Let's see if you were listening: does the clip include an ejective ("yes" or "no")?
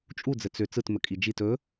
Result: yes